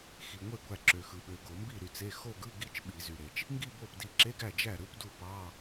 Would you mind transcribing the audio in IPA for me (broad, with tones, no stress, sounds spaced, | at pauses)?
x i˩ ŋʷ e˥˩ ɡʷ æ˧˩ ǁ ø˩ x ɯ˩ ɓ ø˩ ɡ o˧˩˧ m b i˥˩ ɾ y˥˩ t͡s e˧˥˧ x o˥˧ ɡ ɯ˧˥˧ ɡ i˥˧ t͡ʃ ɓ i˧˩˧ z y˩ ɾ e˩ t͡ʃ | ŋ ɡ i˥˧ b o˥˩ p d i˧˩ ǁ e˧˥˧ ɡ æ˥˩ d͡ʒ æ˥˩ ɾ ɯ˧˥˧ p d u˥˩ p ɑ˧˥˧